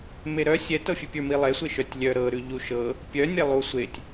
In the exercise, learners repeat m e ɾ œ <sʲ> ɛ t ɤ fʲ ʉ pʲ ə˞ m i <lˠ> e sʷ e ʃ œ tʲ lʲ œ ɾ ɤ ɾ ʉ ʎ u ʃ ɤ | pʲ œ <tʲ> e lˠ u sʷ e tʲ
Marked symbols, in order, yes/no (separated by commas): yes, yes, no